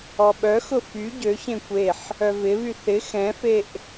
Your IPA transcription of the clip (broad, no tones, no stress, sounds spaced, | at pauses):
ɔ ɓ œ x ʊ f y ɟ ø ç ẽ kʷ e ħ | œ v ɪ β y θ ɪ x ɛ̃ f e ʔ